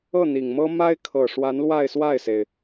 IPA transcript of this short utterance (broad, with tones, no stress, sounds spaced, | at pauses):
ɤ˥˩ n̪ i˨˩ ŋ m ɤ˥ m a˥ ɪ̯ kʰ ɤ˨˩ ʂ w a˧˥ n l w a˥˧ ɪ̯ s w a˥˩ ɪ̯ s e˩ ɪ̯